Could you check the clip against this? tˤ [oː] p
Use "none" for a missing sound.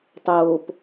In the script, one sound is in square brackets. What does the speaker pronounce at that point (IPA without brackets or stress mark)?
oː